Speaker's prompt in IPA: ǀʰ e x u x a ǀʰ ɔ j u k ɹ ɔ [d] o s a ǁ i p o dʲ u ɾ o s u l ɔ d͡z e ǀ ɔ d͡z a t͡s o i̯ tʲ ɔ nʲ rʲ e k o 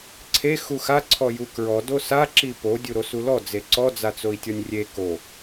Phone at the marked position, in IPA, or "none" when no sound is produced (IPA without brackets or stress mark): d